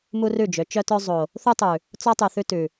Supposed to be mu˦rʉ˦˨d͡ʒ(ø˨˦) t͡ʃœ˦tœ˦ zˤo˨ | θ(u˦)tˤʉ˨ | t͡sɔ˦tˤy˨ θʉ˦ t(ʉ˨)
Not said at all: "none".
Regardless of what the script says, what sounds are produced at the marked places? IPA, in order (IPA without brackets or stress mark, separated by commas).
ø˨˦, u˦, ʉ˨